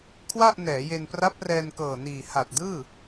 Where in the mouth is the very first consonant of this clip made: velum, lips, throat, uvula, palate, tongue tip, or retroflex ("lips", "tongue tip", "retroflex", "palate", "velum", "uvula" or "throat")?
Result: velum